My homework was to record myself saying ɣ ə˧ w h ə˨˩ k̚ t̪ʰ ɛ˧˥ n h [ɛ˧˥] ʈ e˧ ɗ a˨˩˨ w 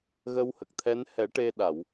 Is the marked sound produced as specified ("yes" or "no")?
no